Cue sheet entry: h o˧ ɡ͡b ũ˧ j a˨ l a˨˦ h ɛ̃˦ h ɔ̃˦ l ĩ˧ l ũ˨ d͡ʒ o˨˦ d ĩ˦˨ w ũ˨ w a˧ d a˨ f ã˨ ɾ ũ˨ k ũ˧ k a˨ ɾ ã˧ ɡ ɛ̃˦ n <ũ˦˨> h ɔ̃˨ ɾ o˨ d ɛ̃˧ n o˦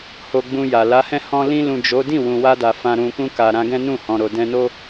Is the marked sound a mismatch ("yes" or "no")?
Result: no